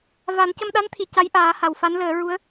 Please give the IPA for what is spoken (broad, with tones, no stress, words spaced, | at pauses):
va˨˩˦ncə˧mɗa˧˥nt̪ʰi˨˩˨ ca˧˥jʔaː˨˩˦ ha˨˩˨wfa˧˥nləː˨˩˦ ɹu˧˥ə̯